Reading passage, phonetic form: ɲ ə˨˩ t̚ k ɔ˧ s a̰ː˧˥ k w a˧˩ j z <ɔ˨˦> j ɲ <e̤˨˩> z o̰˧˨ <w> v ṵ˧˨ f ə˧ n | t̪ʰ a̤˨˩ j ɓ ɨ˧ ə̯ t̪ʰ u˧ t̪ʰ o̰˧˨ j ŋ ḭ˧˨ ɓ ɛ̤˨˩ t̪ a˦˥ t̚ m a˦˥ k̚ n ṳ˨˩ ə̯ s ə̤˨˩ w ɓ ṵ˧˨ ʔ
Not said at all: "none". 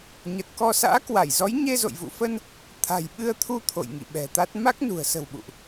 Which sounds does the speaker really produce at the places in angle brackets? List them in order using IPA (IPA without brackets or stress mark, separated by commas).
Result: ɔ˨˦, e˧, j